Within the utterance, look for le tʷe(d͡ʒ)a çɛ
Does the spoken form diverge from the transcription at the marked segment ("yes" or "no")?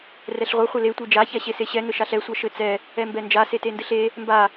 no